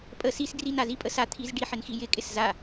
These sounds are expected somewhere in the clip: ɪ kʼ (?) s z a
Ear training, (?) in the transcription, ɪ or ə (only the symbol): ɪ